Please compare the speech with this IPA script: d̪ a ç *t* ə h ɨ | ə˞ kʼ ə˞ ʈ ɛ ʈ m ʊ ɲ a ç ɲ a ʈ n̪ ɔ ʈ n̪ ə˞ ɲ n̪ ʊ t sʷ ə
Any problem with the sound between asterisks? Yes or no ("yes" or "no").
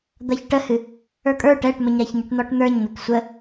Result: yes